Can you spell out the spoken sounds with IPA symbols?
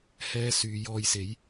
h ɛː˧ s yː˨˧ j ɔː˧ j s e˨˥ j

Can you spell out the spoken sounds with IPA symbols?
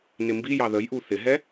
n ɪ m b i j ɑ ð ə j ʔ u θ ɪ ɦ ɛ

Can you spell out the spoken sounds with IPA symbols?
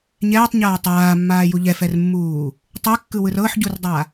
ɲ ɛː tˤ ɲ aː tˤ aː mː aː j u ʎ ɛ f ɛ r mː uː | tˤ ɛ kː ɯ w ɯ r ɤ ħ ɟ u r dˤ a

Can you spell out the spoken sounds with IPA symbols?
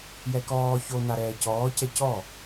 j ɛ k ɔː ç o n a ɾ ɛː c ɔː c ɛ c ɔ

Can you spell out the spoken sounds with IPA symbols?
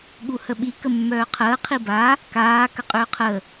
ɠ u h ə ɓ i k ə mː œː qʰ əː qʰ i b a | k aː k ə qʼ ʏː qʰ ə

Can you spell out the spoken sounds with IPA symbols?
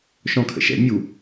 ʃ ɔ̃ kʰ ə̰ ʃ ɛ̰ mʲ u

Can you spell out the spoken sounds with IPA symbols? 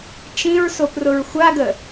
t͡ʃ ĩ ɹ s o p r ʊ ɹ xʷ a ɡ ə

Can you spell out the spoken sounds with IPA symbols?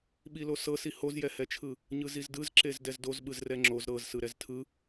ɓ i l o s ɤ s i h o z j ɛ h ɛ t͡ʃʰ ɯ | ɲ ɯ z i z d ɯ z ǁ e z d ɛ z d o z ɓ ɯ z r ɛ ŋ͡ǁ o z ɾ ɤ z s ɯ ɾ ɛ z tʰ ɯ

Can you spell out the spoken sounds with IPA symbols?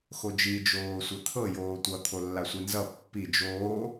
x o d͡ʒ i d͡ʒ oː sʷ ɘ t̪ʰ ɤ j oː tʷ ʌ t̪ʰ o lː a sʷ i n z ʌ pː i d͡ʒ oː

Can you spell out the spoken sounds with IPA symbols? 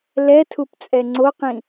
l ɛ tʰ u p t͡sʼ ɛ ŋ͡ǀ o q ĩ

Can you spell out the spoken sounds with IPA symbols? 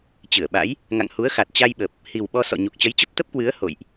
t͡ɕ ɨ˧˩ ə̯ ɓ a̰˧˥ j | ŋ a̰˧˨ ŋ h u˨˦ ə̯ x a˨˩ t̚ t͡ɕ a˧ j ɓ ə˨˩ p̚ | h i˨˩ w ɓ ɔ˧ s ɔ̰˧˨ ɲ u˨˩ k̚ t͡ɕ ə˨˦ j t͡ɕ ə˦˥ p̚ t̪ ə˦˥ p̚ k w ɨ˨˦ ə̯ h o̰˧˨ j ʔ

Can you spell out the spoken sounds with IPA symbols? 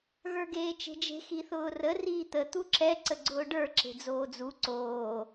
ɣ ə˞ ɡ eː t͡ʃ e̤ d͡ʒ e̤ x i θ ʊː r ə r iː t̪ ə t̪ u ǁ ɛ ǀ ə ɡ͡ǀ ʊː ɖ ə˞ ǁ e̤ d͡z oː d͡z u ǀ oː

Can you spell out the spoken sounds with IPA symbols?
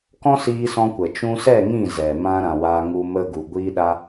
k ɔ̃˦ s iː˧ s ɔ̃˧ kʷ ə˨ t͡ʃ ũ˧ s ɛ˦˨ ŋ ĩ˦˨ z ɛ˨ m ã˧ ɾ ã˨ w aː˧ ŋ u˧ m ə˧ ɡ u˨ ɡʷ iː˧ ɗ a˧

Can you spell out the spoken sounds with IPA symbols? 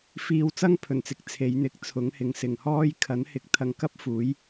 f iː˧ w t͡s ɐ˥ ŋ pʰ ɵ˨˩ n t͡s ɪ˨ k̚ t͡sʰ e˨˧ j n̪ ɪ˧ k̚ t͡sʰ ʊ˨˥ ŋ h ɪ˨˧ ŋ s ɪ˨ ŋ h ɔː˥ j kʰ ɐ˨˥ n h ɪ˨ k̚ t̪ʰ ɐ˧ ŋ k ɐ˥ p̚ f uː˨˥ j

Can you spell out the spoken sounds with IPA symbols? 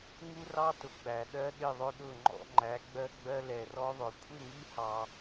ŋ u˦ r ɑ˦ t ʊ˨ ɡ͡b æ˨ ɗ ɜ˦ ɗ ɪ˦˨ ðˤ ʊ˧ ɗ ʊ˦˨ ŋ͡ǃ ɔ̰˧ ŋ͡ǃ æ˨˦ ɡ͡b ɜ˦ ɡ͡b ɜ˦ l ɛ˨ r ɔ˦ ðˤ ʊ˨ kʷʰ ɪ˦˨ ŋ i˧ h ɑ˨

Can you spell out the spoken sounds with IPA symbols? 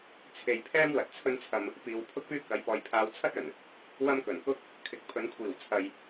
t͡sʰ e˨ j pʰ ɛː˥ m w ɐ˨˥ t̚ t͡sʰ ɵ˥ n t͡sʰ ɐ˧ m | p iː˨ w pʰ ʊ˥ k̚ p yː˥ k ɐ˨˧ j p ɔː˨ j pʰ aː˧ w t͡sʰ ɐ˥ t̚ ɵ˨˩ n | w ɐ˥ m k ɵ˨˩ n k ʊ˥ k̚ | kʰ ɪ˨ k̚ pʰ ɵ˨˧ n kʷʰ iː˨˩ w t͡sʰ ɐ˨ j

